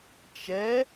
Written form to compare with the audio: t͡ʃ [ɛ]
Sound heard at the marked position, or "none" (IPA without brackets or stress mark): ɛ